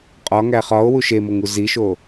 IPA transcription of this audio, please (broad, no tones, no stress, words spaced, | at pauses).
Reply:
qʼɒ ŋæχɒo̯ wuʃemoŋu ziʃo